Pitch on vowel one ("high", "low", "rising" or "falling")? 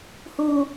low